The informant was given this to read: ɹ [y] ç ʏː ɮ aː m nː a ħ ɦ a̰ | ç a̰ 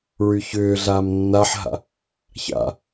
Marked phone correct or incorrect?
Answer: correct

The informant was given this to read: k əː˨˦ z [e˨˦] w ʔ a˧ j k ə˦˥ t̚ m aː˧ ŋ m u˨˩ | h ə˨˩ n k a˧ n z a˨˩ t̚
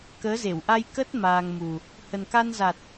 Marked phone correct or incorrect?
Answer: incorrect: e˧˩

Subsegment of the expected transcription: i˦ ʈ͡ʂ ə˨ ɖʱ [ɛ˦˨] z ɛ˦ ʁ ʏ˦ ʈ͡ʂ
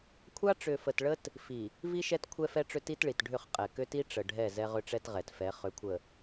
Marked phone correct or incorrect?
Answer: correct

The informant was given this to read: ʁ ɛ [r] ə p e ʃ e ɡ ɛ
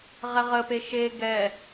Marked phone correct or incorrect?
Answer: incorrect: ʁ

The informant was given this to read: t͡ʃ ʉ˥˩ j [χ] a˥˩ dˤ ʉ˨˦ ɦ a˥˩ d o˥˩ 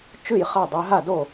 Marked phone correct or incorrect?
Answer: correct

